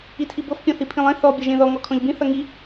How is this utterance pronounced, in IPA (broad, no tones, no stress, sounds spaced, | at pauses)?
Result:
i tʰ i b ɤ f pʲ ɔ̃ θ i pʰ ĩ lˠ ẽ θ ɔ bʲ ʌ ʒ ẽ ð ɔ ŋ ɔ kʰ ɔ̃ ʎ b ĩ θ ʌ ŋ i